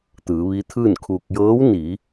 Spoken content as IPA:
t̪ ɯː˩˧ ʋ i˧˥ t̪ʰ ɯː˥˨ n kʰ u˧ k̚ j ɤː˧˥ w n i˩˧

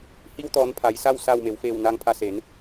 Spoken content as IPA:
h i˧ w t̪ ɔː˩˧ n pʰ a˩˧ j s a˥˨ w s a˧˩ w m e˩˧ w f eː˧˩ w n aː˧ ŋ pʰ a˧ s e˩˧ n

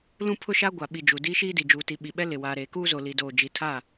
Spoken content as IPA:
l ũ˦ pʰ ʊ˦ ʃ a˦ ɡʷ a˨ ɓ i˨ d͡ʒ u˨ d iː˦ ʃ iː˦ d i˨ d͡ʒ uː˨ t i˨ ɓ i˨ ɓ ɛ˦ l ɪ˨ w aː˨ ɾ eː˨ k uː˦ z o˨ l i˨ d oː˨ d͡ʒ i˨ tʰ a˦˨

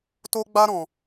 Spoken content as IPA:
t o˦ ɡ͡b a˦ ɾ ɔ̃˧

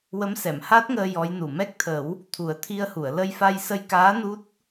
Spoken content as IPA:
w ə˧˥ m s ɛ˨˩˨ m h a˦˥ t̚ ŋ əː˧ j ɔ˧˥ j n u˨˩ m ɛ˦˥ k̚ t̪ʰ ə˨˩˦ w | t̪ʰ u˨˩˦ ə̯ t̪ʰ i˧ ə̯ h u˨˩˨ ə̯ l ə˧ j f a˧ j s ə˧ j k aː˧˥ n u˦˥ t̚

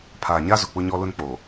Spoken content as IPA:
pʰ aː˨ ɲ a˦ z ʊ˨ k͡p ʊ˦ ɲ ɔ˦ l ʊ˦ n k͡p o˨

